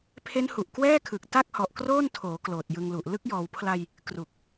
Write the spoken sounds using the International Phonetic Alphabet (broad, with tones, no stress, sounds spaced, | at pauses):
pʰ e˦˥ n h u˨˩ ʔ k w ɛː˥˩ kʰ ɯ˨˩ k̚ t a˥˩ k̚ h ɔ˨˩ ʔ k r oː˥˩ n tʰ oː˩˦ k l oː˨˩ t̚ j ɯ˧ ŋ l u˨˩ ʔ l ɯ˥˩ k̚ j ɔː˩˦ w pʰ l a˧ j | k r u˨˩ k̚